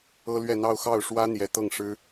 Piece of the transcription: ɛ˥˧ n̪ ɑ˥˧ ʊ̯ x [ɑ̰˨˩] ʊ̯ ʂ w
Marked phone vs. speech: incorrect: ɑ˥˩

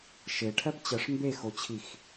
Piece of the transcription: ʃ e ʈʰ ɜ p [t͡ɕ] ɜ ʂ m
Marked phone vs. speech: correct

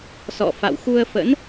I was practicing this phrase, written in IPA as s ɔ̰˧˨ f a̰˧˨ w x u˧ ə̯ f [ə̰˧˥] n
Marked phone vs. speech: correct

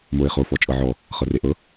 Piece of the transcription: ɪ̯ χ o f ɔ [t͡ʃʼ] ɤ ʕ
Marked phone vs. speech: correct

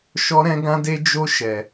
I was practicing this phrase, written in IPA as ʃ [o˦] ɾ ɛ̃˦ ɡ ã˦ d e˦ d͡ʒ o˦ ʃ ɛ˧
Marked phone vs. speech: incorrect: ɔ˦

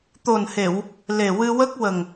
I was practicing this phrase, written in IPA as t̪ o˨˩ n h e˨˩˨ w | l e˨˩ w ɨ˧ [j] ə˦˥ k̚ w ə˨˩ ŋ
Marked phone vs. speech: incorrect: w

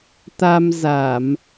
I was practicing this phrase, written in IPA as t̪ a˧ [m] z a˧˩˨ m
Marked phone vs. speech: correct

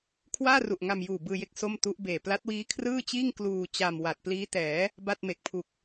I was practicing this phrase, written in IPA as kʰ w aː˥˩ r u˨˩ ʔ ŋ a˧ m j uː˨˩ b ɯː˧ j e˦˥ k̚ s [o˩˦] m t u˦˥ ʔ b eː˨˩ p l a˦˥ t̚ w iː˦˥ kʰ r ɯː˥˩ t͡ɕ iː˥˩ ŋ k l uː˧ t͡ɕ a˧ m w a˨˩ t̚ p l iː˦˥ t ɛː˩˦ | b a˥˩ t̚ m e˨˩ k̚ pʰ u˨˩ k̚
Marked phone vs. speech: incorrect: o˥˩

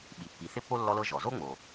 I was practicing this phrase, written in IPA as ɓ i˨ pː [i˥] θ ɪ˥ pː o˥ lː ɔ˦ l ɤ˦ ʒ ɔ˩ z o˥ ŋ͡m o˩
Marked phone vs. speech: incorrect: i˨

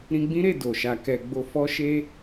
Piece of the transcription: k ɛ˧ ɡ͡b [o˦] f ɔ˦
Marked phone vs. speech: correct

